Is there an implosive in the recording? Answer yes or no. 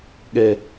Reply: yes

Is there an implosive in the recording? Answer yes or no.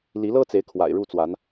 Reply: no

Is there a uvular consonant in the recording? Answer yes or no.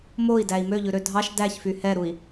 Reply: no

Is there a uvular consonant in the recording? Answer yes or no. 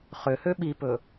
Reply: yes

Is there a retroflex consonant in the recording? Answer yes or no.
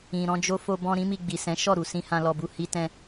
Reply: no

